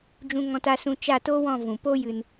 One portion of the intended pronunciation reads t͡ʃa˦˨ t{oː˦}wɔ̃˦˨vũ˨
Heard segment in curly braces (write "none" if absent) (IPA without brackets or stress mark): oː˦